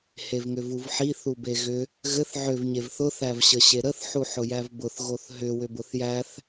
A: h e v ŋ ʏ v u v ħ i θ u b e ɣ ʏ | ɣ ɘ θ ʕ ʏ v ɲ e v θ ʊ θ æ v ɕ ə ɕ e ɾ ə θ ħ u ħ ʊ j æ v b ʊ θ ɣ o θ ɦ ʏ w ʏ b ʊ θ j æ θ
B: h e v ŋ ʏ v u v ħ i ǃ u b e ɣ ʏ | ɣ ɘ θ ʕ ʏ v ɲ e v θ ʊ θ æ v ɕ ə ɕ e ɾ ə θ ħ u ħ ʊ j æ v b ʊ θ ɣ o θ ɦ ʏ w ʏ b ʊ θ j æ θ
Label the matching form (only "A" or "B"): A